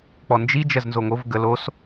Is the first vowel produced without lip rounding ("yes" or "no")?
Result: no